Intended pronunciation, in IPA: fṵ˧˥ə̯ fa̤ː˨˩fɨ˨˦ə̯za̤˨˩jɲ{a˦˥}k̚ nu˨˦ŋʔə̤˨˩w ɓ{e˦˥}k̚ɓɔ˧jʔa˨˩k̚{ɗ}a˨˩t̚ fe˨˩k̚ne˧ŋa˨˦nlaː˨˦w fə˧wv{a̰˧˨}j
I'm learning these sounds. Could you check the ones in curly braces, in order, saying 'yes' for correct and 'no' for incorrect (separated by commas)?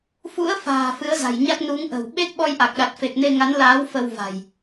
yes, yes, yes, no